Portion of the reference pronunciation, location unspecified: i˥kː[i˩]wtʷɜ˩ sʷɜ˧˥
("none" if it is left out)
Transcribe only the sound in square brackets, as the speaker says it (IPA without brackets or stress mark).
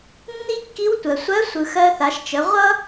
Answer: i˧˥